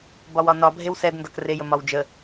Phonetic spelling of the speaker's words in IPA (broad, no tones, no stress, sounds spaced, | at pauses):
b ɒ w ɒ n ɒ bʱ e w s ɛ d n d ɒ k r e j ə m ɒ w d͡ʒ ə